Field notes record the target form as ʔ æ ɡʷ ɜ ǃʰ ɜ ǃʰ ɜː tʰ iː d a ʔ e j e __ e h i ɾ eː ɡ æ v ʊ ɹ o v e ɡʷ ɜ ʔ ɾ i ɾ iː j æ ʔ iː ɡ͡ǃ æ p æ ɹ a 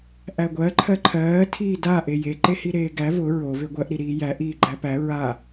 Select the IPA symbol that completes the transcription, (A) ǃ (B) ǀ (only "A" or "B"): A